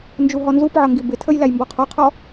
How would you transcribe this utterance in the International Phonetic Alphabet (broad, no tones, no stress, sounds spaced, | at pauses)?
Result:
n d͡ʒ u ɦ ɔ n z u p ʕ ʌ ŋ ɡ i b ɪ tʰ ə j l æ j m b ɔ qʰ ɔ qʰ ɔ